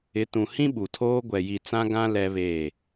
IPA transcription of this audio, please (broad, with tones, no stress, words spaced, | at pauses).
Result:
ɪ˨˦tũ˨hĩ˦ ɓu˨tʰoː˦ ɡʷɛ˨ji˨ t͡sã˦ɡã˦ lɛ˦βeː˦˨